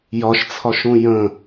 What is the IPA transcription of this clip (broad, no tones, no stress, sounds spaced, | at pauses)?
j ɒ ʃ t͡sʰ ɒ ʃ ũ j ə̃